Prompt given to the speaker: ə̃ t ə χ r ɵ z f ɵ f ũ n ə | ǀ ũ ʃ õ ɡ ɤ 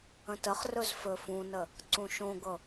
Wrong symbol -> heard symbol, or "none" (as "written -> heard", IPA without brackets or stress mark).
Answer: none